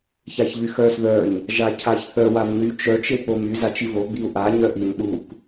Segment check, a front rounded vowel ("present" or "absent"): present